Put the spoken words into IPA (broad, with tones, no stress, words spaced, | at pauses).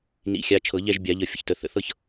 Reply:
nḭ˨˦xʲa˨˦ t͡ʃʰɤ˨˩˦ʎɛ˥˧ʒbʲa˨˩˦ʎə˨˩˦ fʲə̰˨çtə˨˩˦θə̰˨˩˦ θɤ˥˧ç